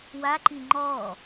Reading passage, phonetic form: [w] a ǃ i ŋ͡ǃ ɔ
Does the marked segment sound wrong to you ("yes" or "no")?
no